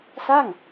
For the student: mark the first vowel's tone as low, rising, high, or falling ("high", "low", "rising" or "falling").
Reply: falling